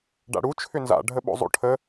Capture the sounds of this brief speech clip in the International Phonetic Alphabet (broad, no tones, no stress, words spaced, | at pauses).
ɖa̰ɽu t͡ʃʰʏnza̰ ɖʱəɓo̰zˤo̰ʈʰə